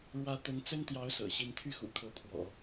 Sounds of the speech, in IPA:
ɻ w ä˥ t̪ ə˧˥ n t͡s ə˥ n t̪ j ɑ˧˥ ʊ̯ s ɤ̰˨˩ ɕ i˥ n t̪ʰ y˥˩ x ṵ˨˩ kʰ ɤ˧˥ pʰ w ɔ̰˨˩˦

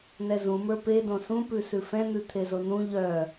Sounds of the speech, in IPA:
n ɛ z ũ m ə˞ p e d õ s ũ p ʉ s ʉ f ɛ̃ n̪ ʉ t̪ʰ e z o n ũ ʎ œ

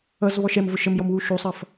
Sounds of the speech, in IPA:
ʌ z β ɔ ʃ ɛ m v ʊ ʃ ə m j ɔ m w u ʃ u sˤ ʌ f

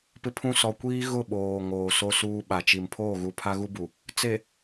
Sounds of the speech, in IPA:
p ɪ˦ pʰ ũ˦ s ɔ˨ kʷ iː˦ ɣ ʊ˦˨ ɓ oː˨ ŋ oː˨ s o˦ s uː˦ ɓ a˨ t͡ʃ i˨ m pʰ oː˦˨ ɣ u˨ pʰ a˦ ɣ u˦ b u˨ | t͡s e˨

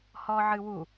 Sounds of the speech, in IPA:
h ɔ ʕ ɨ w u

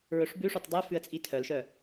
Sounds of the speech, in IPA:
ɹ ɵ ʂ b ʉ ʂ ɔ t dˤ ʉ f ʉ ə̯ t͡sʼ i tʰ œ l ʃ œ

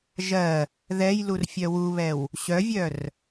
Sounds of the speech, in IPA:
ʒ ɜ | ð ɛ j l u r fʲ œ w u β ɛ w | ɕ œ vʲ œ r

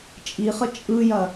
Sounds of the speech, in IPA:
t͡ʃʼ i χ ə t͡ʃʼ ɯ j ɐ

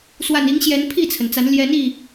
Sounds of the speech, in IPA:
s w a˨˩ n i˨˦ ŋ ɕ j ɛ˨˦ n pʰ i˥˨ t͡sʰ ə˩ n t͡s a˨˦ n l j ɛ˨˦ n i˥˨

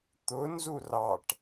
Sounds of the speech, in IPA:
t̪ ʊ n z u r ɑ ʈ

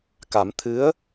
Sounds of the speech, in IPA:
k a˨˩˦ m t̪ʰ ɨ˧˥ ə̯

